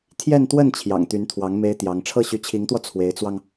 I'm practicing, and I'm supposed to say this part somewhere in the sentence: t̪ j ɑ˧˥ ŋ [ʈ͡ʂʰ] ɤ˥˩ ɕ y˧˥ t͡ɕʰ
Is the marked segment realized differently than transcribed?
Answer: no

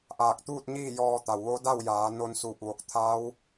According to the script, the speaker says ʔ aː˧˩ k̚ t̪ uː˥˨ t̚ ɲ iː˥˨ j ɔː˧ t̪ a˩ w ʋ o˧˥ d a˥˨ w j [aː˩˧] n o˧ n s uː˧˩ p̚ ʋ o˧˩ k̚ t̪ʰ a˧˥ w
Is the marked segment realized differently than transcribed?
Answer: no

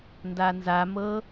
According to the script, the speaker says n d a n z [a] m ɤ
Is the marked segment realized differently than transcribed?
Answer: no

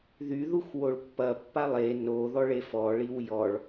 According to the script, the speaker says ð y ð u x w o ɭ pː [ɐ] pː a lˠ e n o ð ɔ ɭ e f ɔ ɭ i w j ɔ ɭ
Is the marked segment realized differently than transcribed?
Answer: no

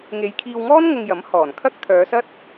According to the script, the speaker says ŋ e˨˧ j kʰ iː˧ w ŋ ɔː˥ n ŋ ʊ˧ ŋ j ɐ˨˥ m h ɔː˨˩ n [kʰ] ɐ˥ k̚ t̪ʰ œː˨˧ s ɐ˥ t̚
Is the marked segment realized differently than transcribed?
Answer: no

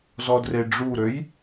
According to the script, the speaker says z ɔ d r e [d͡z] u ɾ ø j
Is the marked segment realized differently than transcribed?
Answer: yes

